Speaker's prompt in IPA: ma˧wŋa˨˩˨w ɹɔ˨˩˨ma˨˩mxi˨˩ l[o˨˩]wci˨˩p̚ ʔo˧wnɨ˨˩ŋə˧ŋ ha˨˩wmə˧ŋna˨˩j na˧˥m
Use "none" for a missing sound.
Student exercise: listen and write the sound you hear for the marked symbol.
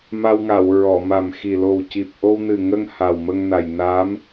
o˨˩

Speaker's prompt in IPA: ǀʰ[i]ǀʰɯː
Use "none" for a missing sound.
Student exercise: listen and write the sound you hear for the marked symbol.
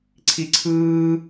i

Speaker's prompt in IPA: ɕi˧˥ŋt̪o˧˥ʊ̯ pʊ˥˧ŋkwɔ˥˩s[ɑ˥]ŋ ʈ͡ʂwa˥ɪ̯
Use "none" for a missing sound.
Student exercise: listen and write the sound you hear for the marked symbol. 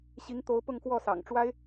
ɑ̰˨˩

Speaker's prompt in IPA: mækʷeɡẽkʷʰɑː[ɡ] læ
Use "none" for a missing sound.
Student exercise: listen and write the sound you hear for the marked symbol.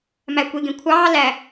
none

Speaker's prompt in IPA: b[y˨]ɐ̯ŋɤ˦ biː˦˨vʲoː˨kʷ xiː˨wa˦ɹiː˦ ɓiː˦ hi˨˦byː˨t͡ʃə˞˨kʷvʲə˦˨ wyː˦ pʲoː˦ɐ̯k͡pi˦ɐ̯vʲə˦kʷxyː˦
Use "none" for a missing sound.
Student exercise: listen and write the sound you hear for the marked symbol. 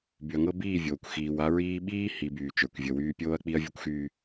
y˨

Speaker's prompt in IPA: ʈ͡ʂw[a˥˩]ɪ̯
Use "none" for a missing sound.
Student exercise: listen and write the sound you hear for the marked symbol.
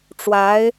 a˧˥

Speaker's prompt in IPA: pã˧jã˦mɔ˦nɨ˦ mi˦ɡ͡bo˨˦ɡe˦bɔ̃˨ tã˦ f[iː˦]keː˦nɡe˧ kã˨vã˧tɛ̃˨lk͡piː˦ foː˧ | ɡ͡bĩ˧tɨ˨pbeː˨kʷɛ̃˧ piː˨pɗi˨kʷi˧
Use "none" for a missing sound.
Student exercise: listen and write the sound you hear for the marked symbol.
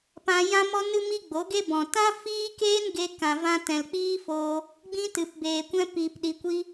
iː˦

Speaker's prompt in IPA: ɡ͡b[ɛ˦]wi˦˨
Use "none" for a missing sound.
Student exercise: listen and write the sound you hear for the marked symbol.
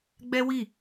ɛ˦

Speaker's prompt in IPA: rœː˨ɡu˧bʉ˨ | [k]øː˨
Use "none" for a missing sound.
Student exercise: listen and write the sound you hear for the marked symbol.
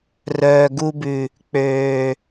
k͡p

